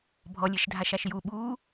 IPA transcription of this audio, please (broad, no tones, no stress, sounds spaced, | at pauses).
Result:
bʱ ɔ lʲ e ʃ dʱ a ʃ a ʃ j u ɓ uː